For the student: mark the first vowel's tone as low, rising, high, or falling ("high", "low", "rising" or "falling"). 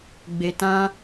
low